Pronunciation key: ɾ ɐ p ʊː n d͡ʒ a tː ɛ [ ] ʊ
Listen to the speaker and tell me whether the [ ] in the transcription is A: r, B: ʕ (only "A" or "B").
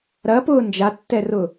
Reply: A